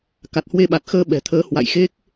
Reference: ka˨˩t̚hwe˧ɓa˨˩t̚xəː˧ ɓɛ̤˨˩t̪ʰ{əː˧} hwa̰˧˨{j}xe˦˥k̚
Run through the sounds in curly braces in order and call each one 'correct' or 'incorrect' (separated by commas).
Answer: incorrect, correct